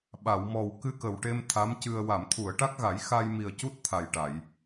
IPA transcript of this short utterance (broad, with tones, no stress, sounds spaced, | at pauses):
ɓ a˨˩˨ w m ɔ˨˩ w k ɨ˧ k ə˨˩ w ʈ e˧ m t̪ʰ a˧˥ m c ɨ˧ ə̯ w a˨˩˨ m t̪ʰ u˨˩˨ ə̯ ʈ a˦˥ k̚ ɣ a˨˩˦ j x a˧ j m i˨˩ ə̯ c u˦˥ t̚ t̪ʰ a˨˩ j ʈ a˨˩˨ j